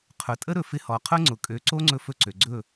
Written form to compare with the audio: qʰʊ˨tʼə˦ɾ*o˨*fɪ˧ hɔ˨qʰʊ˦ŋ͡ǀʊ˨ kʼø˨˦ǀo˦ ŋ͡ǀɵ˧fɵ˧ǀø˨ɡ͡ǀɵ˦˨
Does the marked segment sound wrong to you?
yes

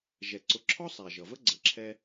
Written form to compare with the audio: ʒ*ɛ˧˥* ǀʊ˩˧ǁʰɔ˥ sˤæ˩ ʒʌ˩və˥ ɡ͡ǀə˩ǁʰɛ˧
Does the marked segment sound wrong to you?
yes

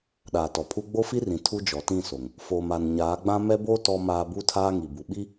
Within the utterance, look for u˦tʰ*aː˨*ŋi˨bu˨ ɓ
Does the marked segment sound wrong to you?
yes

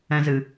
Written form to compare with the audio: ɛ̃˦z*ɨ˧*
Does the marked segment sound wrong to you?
no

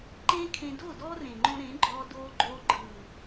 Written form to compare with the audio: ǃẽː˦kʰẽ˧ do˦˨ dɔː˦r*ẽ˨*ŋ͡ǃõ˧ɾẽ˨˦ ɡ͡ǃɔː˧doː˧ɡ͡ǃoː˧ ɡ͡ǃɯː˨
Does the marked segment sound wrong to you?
no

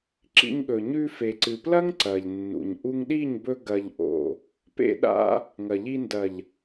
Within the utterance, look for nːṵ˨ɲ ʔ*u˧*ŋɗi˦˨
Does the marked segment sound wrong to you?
no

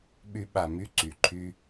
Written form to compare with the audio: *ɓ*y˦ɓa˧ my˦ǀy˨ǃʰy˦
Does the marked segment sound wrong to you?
no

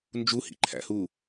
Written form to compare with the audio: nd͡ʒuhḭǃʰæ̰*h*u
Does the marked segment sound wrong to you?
no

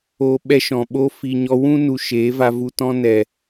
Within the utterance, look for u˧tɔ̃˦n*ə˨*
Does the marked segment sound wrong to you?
yes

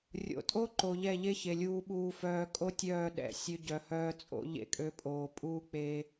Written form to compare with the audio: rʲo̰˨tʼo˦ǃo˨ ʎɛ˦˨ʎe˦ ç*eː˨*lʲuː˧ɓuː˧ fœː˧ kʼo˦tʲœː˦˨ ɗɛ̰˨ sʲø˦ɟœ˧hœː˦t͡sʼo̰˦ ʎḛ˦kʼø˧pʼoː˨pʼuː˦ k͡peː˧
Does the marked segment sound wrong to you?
yes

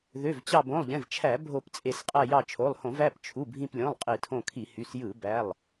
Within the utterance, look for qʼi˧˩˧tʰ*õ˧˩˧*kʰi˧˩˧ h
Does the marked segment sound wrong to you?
yes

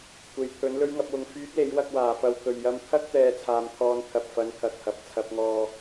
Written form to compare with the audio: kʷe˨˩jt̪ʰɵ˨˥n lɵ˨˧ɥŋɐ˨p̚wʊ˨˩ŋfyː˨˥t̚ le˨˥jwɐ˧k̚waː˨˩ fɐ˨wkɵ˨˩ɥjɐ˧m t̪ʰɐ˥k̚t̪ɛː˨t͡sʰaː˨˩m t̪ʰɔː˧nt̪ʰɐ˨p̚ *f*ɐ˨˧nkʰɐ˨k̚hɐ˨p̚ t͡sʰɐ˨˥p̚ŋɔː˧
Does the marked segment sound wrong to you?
no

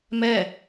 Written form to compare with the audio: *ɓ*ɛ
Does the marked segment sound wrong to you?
yes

